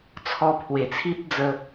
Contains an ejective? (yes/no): no